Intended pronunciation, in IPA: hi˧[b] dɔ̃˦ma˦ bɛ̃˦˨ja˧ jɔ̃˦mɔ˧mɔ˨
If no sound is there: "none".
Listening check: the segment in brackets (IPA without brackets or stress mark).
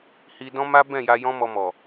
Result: none